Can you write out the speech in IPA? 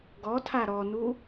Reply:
ɡ ɔ tʰ a ɾ ɔ n u

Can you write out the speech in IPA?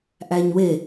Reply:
ʔ æ ɲ w e

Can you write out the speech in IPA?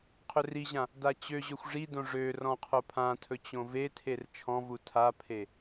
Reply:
qʰ ɵ r i ʑ ã | d a t͡ɕ ø ʑ ø xʷ ʐ i d õ ʐ ø r ɔ̃ qʰ o pʰ ã tʰ ɵ t͡ɕ õ v e tʰ e r t͡ʃʰ ɔ̃ v u tʰ a pʰ e

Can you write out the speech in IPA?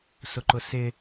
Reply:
s ʊ ǃ ʊ s ɪ

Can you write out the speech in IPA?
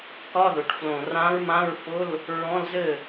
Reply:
k ɒ˧˥˧ ð ʊ˩˧ ʈ f l õ˨˩ r ã˧˥ ɹ m ã˧˥˧ ɹ f ʊ˧˥˧ l | ɹ ɔ̃˧˥˧ l z ɘ˥˩

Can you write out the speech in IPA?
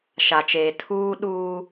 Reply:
ʃ a˨ t͡ʃ eː˨ tʰ uː˦ ɗ uː˦

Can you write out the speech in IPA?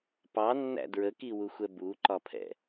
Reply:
p ɑ nː æ̰ d ɹ ə k i w u xʷ ɛ b u ǃ ɒ pʰ ɛ̰

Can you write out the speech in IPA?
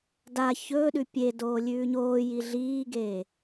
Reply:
d a ç ɵː ɗ ʉ pʲ e d oː lʲ ʉː ɲ oː j i ɮ iː ɡ e

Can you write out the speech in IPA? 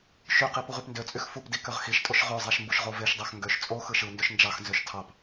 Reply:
ʃ y q i p u ʁ y p n d ø t͡sʼ y x f u p d i k ø ʁ x i ʃ tʼ o ʃ ʁ ø zˤ æ ʃ m b u ʃ ʁ o v e ʃ dˤ æ x ŋ ɡ ø ʃ t͡sʼ o x ɯ ʃ ɯ n d ø ʃ n d͡ʒ ɑ x n z ø ʃ tʰ ɑ p

